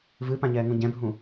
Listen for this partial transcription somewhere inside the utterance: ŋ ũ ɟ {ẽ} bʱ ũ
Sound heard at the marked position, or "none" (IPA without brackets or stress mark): ɛ̃